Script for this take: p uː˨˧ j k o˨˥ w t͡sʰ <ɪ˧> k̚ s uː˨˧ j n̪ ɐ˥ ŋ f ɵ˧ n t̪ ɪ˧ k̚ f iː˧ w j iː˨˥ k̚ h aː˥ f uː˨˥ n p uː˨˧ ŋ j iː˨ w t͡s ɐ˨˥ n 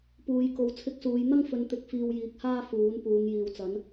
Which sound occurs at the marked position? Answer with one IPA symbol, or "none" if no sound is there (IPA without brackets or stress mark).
ɪ˧